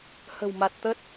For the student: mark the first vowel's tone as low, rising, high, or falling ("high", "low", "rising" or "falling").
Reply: low